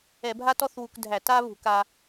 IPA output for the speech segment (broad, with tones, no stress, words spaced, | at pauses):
ɛ˧˩˧bʱa˥tɔ˥θwu˧k dʱæ˧˩˧ta˥βṳ˧˩˧ ka˧